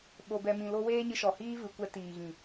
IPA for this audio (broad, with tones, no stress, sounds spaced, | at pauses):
ɓ o˨ b ɛ˨ m ĩ˨ l o˧ w eː˦ ɲ ɨ˧ ʃ ɔ˨ h iː˦ v ɨ˨ kʷ ɛ˧ t iː˨ ɣ ĩ˨